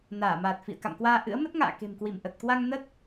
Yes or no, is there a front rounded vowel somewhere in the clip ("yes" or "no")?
no